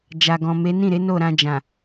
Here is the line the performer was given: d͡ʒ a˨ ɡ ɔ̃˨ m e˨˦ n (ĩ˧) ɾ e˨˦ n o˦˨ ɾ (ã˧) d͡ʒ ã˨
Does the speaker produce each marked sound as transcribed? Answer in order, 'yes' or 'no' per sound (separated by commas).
no, yes